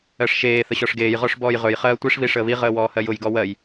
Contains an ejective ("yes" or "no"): no